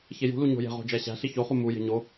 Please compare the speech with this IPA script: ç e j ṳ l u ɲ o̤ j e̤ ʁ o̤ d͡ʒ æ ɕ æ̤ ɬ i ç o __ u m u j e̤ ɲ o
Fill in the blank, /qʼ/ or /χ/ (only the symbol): χ